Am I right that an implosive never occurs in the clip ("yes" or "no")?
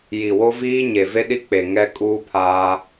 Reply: no